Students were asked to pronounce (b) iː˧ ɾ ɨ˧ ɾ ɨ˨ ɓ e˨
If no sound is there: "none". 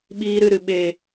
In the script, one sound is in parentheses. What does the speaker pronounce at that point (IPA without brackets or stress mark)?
ɓ